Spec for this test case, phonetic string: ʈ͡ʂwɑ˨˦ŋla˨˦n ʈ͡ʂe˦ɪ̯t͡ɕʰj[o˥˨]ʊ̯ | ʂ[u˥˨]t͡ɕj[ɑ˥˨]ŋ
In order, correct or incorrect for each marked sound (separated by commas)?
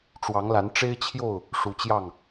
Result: correct, incorrect, correct